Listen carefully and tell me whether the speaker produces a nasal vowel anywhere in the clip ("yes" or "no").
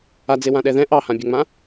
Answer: yes